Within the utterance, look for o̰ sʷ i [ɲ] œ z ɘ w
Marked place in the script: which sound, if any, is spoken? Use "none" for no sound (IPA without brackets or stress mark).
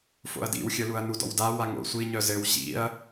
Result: ɲ